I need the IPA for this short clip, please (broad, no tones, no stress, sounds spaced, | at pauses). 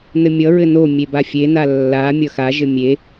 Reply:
n ɘ mʲ ʌ ɹ ɘ n o mʲ e b a fʲ e n a lː a mʲ ʌ x a ʒ ɘ mʲ e